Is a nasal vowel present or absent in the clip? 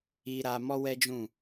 present